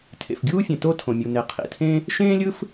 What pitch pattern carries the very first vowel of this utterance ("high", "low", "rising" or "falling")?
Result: low